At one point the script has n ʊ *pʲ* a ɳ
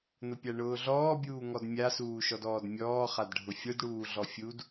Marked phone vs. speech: correct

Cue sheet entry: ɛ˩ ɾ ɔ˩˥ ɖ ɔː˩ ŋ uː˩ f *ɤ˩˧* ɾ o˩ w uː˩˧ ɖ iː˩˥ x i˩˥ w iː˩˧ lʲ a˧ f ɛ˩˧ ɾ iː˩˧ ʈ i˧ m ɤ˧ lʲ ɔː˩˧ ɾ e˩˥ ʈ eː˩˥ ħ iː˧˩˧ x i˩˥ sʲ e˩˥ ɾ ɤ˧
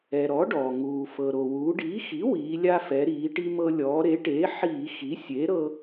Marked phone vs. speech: incorrect: ɤ˩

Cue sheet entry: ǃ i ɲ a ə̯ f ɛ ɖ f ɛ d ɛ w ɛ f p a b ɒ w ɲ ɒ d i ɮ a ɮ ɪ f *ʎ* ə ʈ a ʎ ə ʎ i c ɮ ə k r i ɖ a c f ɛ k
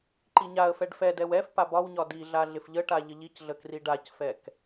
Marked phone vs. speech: correct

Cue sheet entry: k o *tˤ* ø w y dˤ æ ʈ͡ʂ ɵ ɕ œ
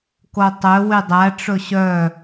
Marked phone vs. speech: correct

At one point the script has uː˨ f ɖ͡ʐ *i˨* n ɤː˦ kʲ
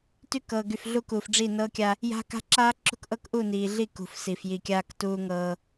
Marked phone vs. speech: incorrect: i˦˨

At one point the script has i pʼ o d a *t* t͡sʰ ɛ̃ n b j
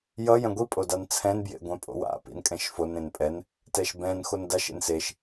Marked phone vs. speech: incorrect: n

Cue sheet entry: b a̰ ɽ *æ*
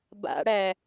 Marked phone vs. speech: correct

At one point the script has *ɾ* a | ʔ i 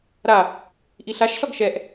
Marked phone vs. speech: correct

